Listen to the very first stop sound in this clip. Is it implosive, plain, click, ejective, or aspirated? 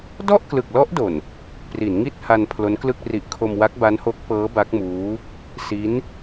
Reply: plain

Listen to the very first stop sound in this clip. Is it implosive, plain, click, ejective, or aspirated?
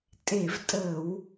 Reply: ejective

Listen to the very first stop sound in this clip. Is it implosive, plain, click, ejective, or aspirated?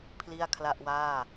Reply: aspirated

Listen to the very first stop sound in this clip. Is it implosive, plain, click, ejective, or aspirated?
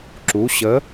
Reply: click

